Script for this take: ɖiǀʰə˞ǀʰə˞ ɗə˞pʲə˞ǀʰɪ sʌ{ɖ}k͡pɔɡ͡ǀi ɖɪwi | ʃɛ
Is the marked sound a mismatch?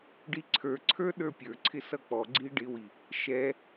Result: yes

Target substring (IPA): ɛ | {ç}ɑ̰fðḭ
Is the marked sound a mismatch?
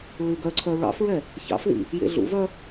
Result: no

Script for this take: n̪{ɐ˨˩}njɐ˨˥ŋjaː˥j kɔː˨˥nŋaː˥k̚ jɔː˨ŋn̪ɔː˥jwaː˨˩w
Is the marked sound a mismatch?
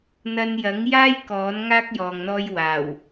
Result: yes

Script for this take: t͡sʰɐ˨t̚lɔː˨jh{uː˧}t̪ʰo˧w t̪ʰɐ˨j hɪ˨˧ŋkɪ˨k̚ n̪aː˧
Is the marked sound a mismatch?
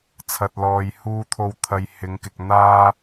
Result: no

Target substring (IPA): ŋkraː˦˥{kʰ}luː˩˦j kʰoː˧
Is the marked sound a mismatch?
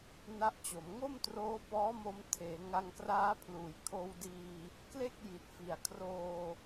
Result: yes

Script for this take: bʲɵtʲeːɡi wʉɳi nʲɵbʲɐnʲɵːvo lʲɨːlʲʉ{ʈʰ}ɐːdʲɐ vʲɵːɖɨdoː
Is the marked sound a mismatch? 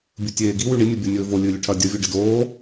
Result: no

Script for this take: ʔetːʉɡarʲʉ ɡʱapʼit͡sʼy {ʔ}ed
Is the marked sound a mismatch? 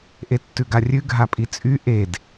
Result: no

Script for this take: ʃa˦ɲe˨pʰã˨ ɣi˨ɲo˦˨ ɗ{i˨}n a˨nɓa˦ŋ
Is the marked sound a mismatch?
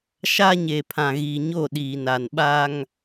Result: yes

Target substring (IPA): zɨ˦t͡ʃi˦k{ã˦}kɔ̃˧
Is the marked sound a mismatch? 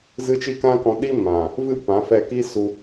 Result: no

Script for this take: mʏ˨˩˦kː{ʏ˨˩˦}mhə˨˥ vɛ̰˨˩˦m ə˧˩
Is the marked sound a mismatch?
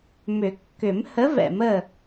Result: no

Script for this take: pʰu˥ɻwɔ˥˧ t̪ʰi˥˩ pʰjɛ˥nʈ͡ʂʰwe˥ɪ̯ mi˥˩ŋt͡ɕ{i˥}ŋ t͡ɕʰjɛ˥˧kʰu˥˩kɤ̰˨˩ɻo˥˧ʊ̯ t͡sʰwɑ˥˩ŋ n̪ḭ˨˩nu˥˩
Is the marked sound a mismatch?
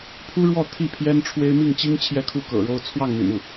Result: no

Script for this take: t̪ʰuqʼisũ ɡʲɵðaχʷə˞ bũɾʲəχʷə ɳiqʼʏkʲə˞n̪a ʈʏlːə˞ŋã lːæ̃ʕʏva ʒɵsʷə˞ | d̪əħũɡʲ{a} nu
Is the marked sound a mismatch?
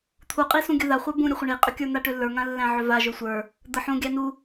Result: yes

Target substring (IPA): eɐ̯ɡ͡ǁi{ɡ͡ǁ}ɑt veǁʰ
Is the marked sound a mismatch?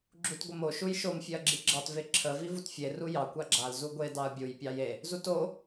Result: no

